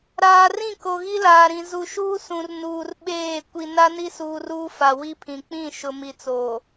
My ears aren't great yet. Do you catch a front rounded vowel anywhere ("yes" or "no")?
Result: no